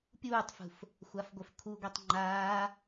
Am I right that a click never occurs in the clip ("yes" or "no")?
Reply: no